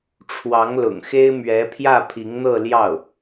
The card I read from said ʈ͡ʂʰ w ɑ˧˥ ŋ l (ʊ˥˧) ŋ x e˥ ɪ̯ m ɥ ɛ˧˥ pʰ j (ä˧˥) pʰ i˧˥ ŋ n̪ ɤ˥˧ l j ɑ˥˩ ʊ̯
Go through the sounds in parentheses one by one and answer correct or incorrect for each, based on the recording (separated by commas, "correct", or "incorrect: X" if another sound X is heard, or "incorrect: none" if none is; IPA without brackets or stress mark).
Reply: incorrect: ʊ̰˨˩, incorrect: ä˥˩